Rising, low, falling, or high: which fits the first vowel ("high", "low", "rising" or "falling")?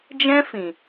high